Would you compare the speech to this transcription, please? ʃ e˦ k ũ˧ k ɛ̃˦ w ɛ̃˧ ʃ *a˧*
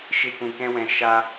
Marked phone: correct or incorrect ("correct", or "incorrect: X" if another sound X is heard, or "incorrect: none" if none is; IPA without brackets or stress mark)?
correct